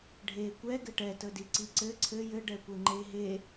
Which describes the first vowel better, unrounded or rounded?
unrounded